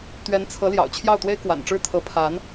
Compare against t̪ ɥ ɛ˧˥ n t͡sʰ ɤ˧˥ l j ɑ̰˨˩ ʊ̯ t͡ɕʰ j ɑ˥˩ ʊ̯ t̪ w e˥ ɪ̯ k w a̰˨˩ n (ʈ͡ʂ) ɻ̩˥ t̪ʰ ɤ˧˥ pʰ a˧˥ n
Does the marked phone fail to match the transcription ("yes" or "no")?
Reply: no